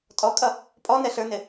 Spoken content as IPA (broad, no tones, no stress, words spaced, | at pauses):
tʼɔkʼʌ | pʼɔ nɛɬə˞nɪ